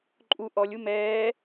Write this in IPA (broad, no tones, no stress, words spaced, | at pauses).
ǃʼu ʔɔlʲu mɛː